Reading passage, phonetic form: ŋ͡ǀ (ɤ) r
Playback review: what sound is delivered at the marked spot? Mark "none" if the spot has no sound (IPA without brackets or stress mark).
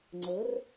ɤ